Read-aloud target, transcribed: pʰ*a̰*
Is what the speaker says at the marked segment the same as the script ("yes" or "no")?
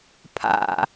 yes